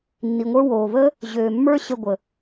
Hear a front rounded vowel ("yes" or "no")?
yes